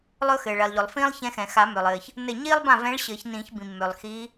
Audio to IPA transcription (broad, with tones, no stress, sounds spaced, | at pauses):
lˠ ɵ˥ x ɘː˩ ɭ ɛ˩ lˠ ʎ ɵ˩ lˠ f ĩː˥ lˠ ç ɛ̃˧˥ x ɛ̃˩ x a˨˩˦ m ø˩ lˠ ɘː˩ ç | n ɘ˥˩ ɲ iː˥ lˠ b ã˥˩ v ɛ̃˧˥ ɭ ɕ ɘː˨˩˦ ç n ĩː˨˩˦ ç b ĩ˩ mː ø˩ lˠ x iː˧˥